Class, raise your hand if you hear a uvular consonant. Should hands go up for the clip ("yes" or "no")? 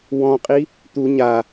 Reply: yes